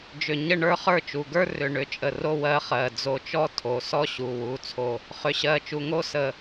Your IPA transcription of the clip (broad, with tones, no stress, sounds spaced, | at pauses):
d͡ʒ ʏ˧˩ ɲ ə˥˧ ɳ ə˞˥˧ χ ə˞˥˧ t͡ʃ u˩˧˩ ɡ ə˞˥ r ʏ˩˧˩ ɳ ʏ˧˩ t͡ʃʼ ə˧˩ r o˥˧ w ɜ˥ χ ɜ˩˧˩ d͡z o˧˩ t͡ʃ ɔ˥ tʰ o˩˧˩ s ɔ˥ ɕ u˩˧˩ w u˩˧˩ t͡sʰ o˧˩ | χ ʏ˩˧˩ ɕ ɜ˩˧˩ t͡ʃ u˩˧˩ ŋ o˥ s ə˧˩